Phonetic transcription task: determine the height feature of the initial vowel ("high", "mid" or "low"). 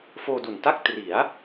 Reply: mid